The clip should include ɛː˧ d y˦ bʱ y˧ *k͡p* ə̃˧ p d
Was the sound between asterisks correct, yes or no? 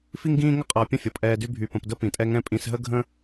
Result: no